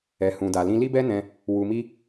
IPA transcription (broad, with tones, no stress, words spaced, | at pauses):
ɛ˨hũ˨da˨lĩ˧ li˦bɛ˦nɛ̃˧ | wu˧mi˦